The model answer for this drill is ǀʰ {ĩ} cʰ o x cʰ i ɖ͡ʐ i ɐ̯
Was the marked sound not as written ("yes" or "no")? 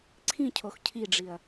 no